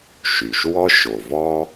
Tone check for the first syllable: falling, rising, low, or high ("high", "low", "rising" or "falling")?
low